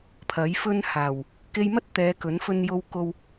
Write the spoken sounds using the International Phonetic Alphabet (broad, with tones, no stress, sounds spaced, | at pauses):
pʰ ɐ˨˥ j f ɵ˥ n h aː˨˩ w | k e˧ j m ɐ˥ t̚ t̪ ɛː˨˧ k ɵ˨˥ n f ɵ˧ n j o˧ w k o˧ w